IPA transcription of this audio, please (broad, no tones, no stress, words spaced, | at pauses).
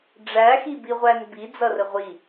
ɖ͡ʐæxibiʁʷæn bid͡zʌrə ʁʷi